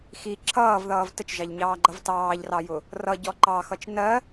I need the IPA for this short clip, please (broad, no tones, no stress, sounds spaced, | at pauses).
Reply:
x i ǁʰ ʌː v ð ʌː v t ə t͡ʃ ʒ ɑ ʎ ɲ ɑː ɡ͡ǃ ʌ v t ɑː ʎ r ɑ j ʊ | r ʌ ɟ ɔ ǃ ɑ x ʌ t͡ʃ n ɜ